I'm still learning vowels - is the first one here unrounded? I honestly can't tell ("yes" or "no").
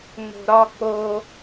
no